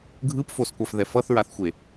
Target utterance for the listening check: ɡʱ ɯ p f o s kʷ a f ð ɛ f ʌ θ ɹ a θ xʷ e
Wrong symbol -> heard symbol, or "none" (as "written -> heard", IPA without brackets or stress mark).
none